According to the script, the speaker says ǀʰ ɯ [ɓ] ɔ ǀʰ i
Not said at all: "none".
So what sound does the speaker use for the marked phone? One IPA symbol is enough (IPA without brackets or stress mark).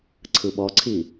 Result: ɓ